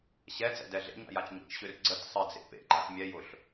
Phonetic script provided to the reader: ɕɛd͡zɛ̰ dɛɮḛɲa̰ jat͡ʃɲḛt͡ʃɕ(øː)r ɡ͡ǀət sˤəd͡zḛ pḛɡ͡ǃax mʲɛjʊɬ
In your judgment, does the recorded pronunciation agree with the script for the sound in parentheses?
no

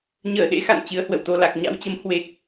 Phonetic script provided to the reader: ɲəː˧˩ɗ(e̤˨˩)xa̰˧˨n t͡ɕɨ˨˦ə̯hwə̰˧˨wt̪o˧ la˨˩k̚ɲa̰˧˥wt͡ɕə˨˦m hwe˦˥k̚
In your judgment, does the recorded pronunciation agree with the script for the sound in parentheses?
no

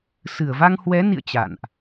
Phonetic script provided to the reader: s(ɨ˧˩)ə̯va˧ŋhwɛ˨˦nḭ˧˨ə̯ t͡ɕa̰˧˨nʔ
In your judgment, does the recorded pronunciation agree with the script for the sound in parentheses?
yes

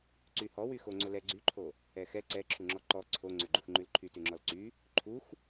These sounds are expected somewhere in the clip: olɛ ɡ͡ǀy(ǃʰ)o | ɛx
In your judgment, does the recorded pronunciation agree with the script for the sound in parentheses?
yes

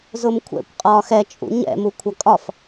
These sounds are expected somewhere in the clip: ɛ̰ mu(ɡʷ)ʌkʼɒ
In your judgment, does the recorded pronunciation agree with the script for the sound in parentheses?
no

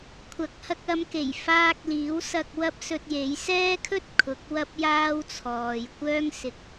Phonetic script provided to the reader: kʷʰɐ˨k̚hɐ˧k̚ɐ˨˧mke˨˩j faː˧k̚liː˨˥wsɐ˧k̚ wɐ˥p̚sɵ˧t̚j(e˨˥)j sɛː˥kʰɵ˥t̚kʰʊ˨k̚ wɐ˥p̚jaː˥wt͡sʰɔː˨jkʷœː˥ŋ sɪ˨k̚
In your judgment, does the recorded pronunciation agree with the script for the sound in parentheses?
yes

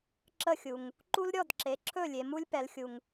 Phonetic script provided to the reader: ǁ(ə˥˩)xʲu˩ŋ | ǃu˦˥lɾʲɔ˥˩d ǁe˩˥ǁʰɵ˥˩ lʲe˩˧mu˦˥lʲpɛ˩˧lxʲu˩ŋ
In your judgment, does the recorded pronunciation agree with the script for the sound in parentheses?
yes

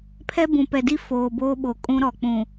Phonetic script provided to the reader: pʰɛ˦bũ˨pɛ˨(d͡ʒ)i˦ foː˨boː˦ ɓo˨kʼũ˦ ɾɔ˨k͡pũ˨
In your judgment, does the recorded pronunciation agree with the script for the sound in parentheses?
no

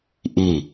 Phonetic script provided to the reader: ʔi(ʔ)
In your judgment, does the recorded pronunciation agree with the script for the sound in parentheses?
no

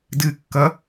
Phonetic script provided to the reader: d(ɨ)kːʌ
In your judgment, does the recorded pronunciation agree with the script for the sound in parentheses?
yes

